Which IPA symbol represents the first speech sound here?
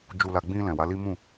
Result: d͡ʒ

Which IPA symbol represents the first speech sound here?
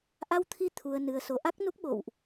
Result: ʔ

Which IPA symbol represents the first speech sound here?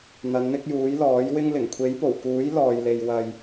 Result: n̪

